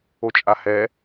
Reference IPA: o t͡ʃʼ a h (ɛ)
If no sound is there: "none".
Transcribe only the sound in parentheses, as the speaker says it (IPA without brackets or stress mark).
ɛ